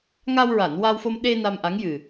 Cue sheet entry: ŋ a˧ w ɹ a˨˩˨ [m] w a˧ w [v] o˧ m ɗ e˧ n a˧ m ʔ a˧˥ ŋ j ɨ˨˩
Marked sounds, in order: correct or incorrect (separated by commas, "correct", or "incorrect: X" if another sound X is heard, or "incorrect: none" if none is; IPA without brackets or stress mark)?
incorrect: n, incorrect: f